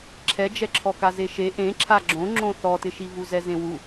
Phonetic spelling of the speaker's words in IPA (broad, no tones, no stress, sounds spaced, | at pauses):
ǁʰ ɛ d͡ʒ ɛ ǁʰ ɔ k a z e ʃ e ʔ ẽ ǁʰ a ɡ͡ǁ õ ŋ͡ǁ õ θ ɔ t ɪ ʃ i v u z ɛ z ẽ w u